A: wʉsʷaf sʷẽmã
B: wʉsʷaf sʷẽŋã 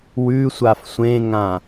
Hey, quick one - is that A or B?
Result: B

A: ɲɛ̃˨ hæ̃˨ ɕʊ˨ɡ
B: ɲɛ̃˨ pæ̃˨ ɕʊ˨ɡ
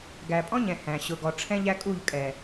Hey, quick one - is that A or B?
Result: A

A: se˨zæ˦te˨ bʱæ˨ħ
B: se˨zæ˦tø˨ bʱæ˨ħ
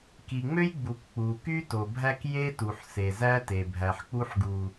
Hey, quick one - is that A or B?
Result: A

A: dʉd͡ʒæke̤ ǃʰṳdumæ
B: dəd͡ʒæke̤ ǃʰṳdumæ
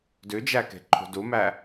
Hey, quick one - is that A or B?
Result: A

